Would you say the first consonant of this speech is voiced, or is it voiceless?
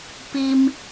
voiceless